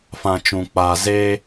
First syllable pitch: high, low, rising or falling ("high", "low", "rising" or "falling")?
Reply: low